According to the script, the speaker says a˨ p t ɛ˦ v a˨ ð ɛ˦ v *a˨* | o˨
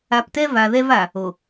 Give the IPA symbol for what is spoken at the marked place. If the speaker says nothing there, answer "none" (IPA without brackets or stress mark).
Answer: a˨